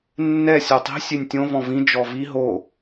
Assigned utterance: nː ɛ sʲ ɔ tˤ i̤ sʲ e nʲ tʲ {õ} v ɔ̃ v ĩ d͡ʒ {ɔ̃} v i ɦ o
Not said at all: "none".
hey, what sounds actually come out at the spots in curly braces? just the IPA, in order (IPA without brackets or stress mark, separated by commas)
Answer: õ, ɔ